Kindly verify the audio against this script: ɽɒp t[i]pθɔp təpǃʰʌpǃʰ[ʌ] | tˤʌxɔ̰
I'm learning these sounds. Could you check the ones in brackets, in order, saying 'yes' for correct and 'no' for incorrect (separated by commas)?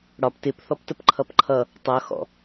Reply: no, yes